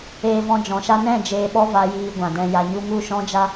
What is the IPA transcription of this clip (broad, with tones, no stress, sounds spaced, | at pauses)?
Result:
eː˧ v ɔ̃˧ d͡ʒ ɔ̃˨˦ ʃ a˦ n ɛ̃˦˨ d͡ʒ eː˧ ɓ ɔ˦ v a˧ j iː˧ ɡʷ ã˨ d ɛ̃˧ j a˧ ɲ u˦ ŋ u˦˨ ʃ ɔ̃˦ d͡ʒ a˦